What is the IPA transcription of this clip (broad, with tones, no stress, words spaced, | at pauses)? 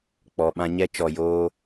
k͡pɔ˨ɓã˧ɲɛ˦ t͡ʃɔ˨joː˧